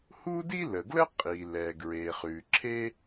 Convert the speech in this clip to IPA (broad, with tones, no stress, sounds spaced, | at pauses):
h u˥ d i˥ l ə˩ ɡ l ə˥ qʼ i˩ l ɛ˩ ɡ ɹ e˩ χ ʉ˩ ǁʰ e˥